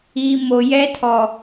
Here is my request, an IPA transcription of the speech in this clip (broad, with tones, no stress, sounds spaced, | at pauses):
iː˨ m o˨ j ɛ˦ tʰ ɔ˨